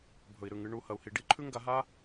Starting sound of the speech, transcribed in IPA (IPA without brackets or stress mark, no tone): bʱ